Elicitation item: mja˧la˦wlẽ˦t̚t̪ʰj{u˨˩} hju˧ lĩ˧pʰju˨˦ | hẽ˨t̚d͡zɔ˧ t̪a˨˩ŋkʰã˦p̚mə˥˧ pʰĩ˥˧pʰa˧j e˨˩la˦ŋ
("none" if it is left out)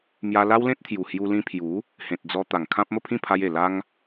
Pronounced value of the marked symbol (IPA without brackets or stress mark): u˨˩